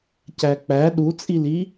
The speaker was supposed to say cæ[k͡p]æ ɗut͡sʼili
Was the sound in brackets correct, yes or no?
yes